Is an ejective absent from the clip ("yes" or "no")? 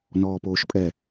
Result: no